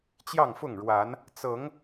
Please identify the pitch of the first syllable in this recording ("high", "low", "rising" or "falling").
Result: falling